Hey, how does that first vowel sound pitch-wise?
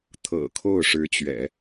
low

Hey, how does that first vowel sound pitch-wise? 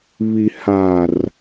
low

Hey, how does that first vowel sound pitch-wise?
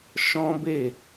high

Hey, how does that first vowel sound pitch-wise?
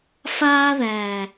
high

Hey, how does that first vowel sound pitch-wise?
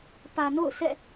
low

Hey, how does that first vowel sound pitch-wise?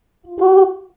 falling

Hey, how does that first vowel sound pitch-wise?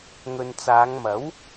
low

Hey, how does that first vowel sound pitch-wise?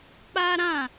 high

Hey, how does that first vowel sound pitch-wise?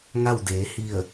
falling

